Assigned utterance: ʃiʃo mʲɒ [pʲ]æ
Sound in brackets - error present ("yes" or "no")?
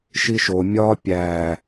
no